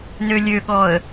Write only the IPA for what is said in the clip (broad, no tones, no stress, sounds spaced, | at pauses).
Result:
n ø lʲ ø ɠ ɔ ə̯